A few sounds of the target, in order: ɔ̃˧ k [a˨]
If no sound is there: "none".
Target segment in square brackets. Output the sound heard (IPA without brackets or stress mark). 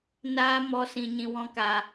a˨